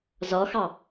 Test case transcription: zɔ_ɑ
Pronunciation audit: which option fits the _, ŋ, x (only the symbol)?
x